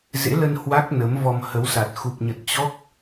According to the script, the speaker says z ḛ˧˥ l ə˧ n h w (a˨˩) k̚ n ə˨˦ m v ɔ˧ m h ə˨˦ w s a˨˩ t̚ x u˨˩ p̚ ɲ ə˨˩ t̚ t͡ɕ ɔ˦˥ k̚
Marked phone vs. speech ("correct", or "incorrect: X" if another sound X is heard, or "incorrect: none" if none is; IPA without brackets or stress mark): incorrect: a˦˥